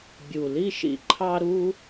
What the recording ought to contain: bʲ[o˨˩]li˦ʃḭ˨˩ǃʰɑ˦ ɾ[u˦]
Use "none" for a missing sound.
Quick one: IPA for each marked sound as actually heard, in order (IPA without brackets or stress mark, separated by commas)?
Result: u˨˩, u˦